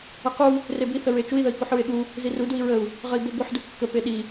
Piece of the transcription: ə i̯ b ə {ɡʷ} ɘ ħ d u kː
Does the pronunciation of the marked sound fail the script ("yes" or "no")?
no